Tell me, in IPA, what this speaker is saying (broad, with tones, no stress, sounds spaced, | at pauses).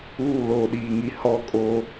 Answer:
uː˦˨ l oː˨ ɗ iː˨ ŋ i˨ h ɔ˦ kʼ o˦